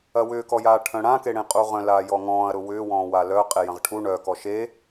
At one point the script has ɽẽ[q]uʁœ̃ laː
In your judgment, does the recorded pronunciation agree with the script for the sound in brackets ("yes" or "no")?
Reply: no